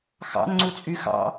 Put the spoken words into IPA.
xɑ̰nŋ͡ǀut͡sʼy xɑ̰

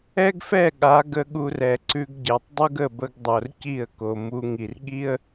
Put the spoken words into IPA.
ɛ˦ɡfɛ˦˨ɠa˨˦ ɡə˧ɠu˧rɛ˨ǀʉ˧ɡ ɟɛ˨tˤdˤu˦ɡə˦˨bə˧ɡ dˤo˨rci˦˨ə̯ko˨mu˧ ŋi˨rɠi˦ə̯

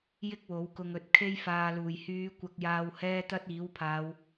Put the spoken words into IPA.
jɪ˥k̚wo˨˥wkʊ˧ŋɵ˨˥t̚ kʰe˧jfaː˨luː˨˩jhyː˨˧ kʷɐ˧k̚jaː˧w hɛː˥t̪ɐ˥t̚ iː˨˥wpʰaː˨˧w

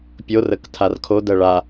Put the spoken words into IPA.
pʲorək tʰarkʰodɜ ɭa

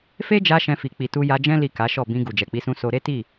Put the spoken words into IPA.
fe˦d͡ʒa˧ ʃɛ̃˧fi˨ k͡pi˨tu˧ja˧ d͡ʒɛ̃˦ li˦˨ka˨˦ʃɔ˦˨ bĩ˧ ɡu˨d͡ʒɛ˨k͡pi˨˦sũ˧ so˧ ɾe˦ti˦˨

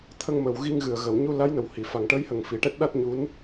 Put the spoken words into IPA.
t̪ʰə˧ŋmə˨˩wɣi˧ŋɣɨ˨˩ə̯ ɣə˨˩˨w ɲu˧la˧˥jnə˨˩w hi˨˩˨ fa˨˩ŋʈəː˧˥jhə˨˩ŋ fi˨˩˦ʈɛ˦˥t̚ ɗa˦˥t̚ɲu˧˥n

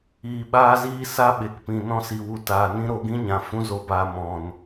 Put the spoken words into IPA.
iː˨ɓaː˧ziː˧ sa˦ɓe˨kpĩ˨ nɔ̃˧si˨wu˨ taː˨nĩ˦ ɾo˧ɡĩ˦ɲã˨ fũ˦zo˧baː˧ mɔ̃˨n

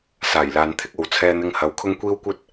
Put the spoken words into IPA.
saː˨˩jlaː˨n t̪ʰɪ˥k̚o˨˧w t͡sʰɛː˧n̪ɪ˧ŋhɐ˨˧w kʰʊ˥ŋkʷiː˥wkʷɐ˥t̚

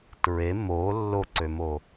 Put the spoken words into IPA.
tɹe mo lːoǀømo

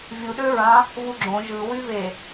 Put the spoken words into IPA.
vʲuɗøɹɑ̃ | vuɡ͡ǁõ ʒɯwyve

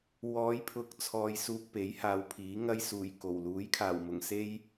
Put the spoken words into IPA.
wɔː˨˧jpʰʊ˨k̚ t͡sʰɔː˧jsuː˧k̚ pe˨˥jhaː˨˧wpʰiː˨˥ ŋɐ˥jsuː˨˩jko˨˩w luː˨˥jkʰaː˨˩wmʊ˨˩ŋse˥j

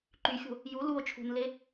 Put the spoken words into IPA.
ǃyxʲo̤ | ju luo̯ t͡ʃʰṳnle

